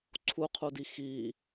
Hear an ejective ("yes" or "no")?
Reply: no